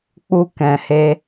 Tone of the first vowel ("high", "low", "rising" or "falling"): high